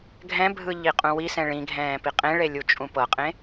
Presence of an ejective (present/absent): present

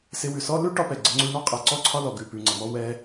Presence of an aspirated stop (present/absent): present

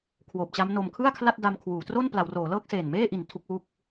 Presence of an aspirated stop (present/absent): present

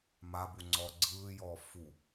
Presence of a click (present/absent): present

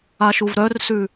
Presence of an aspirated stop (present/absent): absent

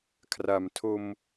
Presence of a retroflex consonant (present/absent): absent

